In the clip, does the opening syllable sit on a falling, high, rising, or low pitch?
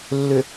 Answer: low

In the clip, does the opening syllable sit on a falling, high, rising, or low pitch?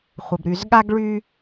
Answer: low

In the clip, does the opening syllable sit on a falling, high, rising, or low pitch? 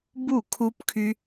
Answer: falling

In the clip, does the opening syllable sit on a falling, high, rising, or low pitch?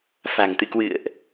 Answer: low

